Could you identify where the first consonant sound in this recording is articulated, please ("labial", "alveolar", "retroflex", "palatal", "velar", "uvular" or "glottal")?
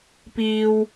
labial